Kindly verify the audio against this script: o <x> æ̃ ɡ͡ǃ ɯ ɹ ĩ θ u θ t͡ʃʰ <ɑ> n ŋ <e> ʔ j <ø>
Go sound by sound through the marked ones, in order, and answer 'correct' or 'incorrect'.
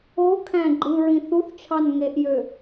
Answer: incorrect: kʰ, correct, correct, correct

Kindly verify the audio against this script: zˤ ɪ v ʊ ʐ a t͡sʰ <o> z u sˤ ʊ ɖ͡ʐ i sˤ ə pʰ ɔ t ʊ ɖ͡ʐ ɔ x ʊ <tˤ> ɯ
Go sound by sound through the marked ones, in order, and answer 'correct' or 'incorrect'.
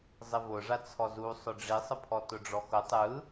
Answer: incorrect: ɔ, correct

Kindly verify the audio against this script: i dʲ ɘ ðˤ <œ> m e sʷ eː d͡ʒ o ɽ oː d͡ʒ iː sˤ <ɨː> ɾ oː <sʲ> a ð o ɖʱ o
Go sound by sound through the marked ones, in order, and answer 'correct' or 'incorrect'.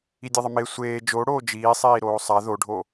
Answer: incorrect: ə, incorrect: iː, incorrect: sˤ

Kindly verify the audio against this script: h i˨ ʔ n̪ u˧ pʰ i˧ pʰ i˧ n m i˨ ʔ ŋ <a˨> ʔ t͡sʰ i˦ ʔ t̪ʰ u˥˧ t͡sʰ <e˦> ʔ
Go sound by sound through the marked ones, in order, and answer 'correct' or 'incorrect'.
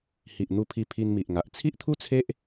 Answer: correct, correct

